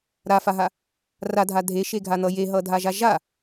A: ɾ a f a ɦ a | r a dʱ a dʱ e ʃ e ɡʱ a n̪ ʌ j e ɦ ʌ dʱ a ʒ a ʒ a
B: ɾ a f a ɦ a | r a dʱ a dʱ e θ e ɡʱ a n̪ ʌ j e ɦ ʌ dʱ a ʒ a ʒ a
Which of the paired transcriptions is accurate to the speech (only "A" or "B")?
A